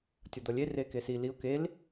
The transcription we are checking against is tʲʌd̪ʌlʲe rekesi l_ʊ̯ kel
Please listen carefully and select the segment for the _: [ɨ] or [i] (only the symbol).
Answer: i